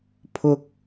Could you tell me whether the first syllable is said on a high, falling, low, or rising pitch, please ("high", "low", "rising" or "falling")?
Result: high